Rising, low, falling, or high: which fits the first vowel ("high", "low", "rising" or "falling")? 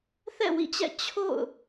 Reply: falling